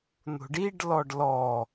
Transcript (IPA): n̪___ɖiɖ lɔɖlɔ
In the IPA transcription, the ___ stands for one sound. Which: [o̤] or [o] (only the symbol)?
o̤